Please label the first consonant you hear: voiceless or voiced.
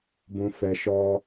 voiced